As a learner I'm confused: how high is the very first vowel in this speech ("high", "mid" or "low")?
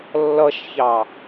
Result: mid